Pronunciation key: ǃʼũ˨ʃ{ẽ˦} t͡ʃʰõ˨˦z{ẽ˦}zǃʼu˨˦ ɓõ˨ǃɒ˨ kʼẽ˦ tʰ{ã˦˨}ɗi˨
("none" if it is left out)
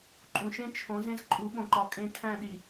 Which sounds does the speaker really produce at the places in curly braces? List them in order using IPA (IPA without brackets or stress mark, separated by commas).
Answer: ẽ˦, ẽ˦, æ̃˦˨